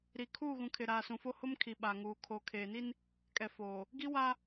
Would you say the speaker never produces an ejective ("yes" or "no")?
no